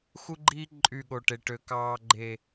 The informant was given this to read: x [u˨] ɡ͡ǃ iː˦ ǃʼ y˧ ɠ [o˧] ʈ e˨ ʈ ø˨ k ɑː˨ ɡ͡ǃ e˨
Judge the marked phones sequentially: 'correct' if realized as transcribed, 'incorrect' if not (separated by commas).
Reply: incorrect, incorrect